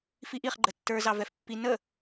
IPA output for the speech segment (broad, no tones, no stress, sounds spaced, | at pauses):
f i ʔ i χ ɡ͡ǃ ə tː ə˞ z ɑ v ɛ f pː i n ə